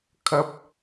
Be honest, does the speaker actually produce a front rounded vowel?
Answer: no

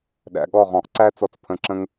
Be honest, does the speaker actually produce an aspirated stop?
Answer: yes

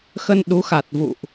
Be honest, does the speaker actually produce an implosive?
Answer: yes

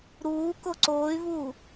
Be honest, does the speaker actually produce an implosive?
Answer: no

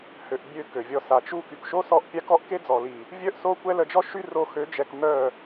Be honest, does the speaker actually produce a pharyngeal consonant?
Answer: no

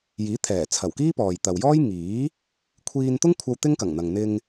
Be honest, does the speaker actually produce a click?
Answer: no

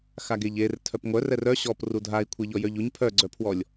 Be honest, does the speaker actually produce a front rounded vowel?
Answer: yes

